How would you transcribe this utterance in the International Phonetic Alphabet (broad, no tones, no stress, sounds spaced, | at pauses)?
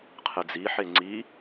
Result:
qʰ ɨ d͡z i ħ e ŋ͡ǀ i